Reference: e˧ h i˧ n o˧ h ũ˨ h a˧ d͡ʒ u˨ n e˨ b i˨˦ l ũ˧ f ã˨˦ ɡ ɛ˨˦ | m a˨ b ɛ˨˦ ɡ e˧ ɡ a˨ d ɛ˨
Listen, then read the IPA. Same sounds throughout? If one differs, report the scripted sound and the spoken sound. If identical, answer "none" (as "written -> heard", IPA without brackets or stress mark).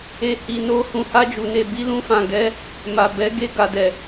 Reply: ã˨˦ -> ã˨